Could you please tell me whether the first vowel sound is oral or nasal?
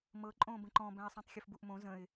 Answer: oral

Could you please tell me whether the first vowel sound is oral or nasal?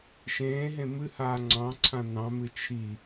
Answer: nasal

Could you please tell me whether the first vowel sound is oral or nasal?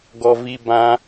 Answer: oral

